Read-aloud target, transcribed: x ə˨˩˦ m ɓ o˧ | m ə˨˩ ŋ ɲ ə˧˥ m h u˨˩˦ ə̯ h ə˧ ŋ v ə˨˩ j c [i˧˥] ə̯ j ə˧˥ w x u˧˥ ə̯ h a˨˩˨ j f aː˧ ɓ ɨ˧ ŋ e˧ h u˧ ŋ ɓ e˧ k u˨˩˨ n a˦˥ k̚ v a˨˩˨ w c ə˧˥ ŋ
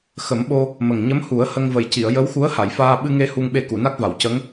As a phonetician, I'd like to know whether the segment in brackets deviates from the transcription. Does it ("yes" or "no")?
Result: yes